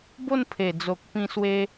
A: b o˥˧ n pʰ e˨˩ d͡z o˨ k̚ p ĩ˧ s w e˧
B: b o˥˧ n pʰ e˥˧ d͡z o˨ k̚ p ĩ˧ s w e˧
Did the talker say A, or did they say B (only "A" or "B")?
A